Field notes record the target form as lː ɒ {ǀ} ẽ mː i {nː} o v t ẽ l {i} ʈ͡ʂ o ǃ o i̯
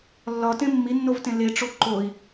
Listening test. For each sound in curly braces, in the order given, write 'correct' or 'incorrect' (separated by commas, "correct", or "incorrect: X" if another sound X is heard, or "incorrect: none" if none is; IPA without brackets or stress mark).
incorrect: t, correct, incorrect: e